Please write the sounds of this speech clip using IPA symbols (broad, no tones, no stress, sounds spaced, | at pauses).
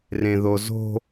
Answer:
r ẽ ð o z o̤